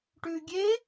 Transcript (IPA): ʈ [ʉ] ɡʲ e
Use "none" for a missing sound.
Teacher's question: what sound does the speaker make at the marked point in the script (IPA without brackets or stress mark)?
ʉ